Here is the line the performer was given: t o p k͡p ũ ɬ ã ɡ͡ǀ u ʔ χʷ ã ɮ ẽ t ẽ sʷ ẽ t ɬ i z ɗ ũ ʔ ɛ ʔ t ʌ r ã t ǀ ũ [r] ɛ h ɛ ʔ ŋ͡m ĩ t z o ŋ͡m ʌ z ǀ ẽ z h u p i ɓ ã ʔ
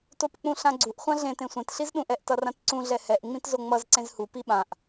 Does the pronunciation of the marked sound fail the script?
yes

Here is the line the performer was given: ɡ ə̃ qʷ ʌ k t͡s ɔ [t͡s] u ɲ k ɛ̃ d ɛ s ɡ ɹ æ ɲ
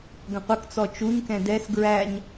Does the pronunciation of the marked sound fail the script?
yes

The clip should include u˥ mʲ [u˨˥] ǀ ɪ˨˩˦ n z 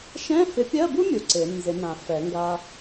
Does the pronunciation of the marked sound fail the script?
yes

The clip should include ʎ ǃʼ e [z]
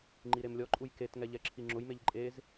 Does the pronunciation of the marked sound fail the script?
no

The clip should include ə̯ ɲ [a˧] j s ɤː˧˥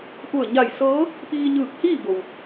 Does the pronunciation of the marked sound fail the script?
yes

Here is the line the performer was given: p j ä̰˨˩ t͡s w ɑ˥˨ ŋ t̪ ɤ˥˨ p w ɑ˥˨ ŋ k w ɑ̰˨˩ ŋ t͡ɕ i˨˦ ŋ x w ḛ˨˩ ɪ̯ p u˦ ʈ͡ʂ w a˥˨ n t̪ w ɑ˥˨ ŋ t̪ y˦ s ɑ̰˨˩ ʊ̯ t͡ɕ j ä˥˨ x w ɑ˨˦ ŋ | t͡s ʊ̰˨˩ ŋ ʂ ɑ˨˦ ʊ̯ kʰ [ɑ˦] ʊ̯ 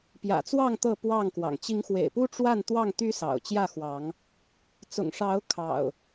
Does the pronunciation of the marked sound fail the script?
yes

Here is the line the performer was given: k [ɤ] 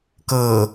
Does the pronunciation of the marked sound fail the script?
no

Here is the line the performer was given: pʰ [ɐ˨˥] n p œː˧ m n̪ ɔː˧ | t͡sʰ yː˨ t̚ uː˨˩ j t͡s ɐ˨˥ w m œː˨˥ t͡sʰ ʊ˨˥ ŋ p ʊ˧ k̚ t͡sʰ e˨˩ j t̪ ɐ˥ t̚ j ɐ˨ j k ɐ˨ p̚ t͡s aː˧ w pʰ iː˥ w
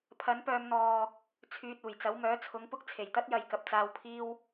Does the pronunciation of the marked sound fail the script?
no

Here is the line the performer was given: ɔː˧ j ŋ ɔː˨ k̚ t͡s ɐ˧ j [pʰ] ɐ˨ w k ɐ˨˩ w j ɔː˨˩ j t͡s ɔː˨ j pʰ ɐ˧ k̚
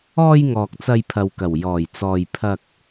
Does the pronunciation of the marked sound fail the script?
no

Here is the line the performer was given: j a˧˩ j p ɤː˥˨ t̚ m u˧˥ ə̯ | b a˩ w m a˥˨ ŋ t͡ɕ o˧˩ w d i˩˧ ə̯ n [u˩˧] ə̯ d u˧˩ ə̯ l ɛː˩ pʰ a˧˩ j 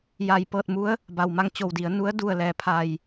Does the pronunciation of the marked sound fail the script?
yes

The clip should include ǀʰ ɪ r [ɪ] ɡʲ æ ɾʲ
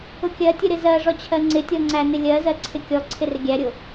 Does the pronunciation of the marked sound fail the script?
no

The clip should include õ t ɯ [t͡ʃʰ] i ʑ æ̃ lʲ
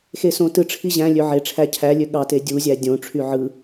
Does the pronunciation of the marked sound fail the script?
yes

